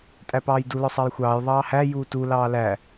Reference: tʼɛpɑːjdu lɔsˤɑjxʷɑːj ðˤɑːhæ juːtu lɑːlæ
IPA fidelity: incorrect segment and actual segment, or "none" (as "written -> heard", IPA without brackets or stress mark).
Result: ɛ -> æ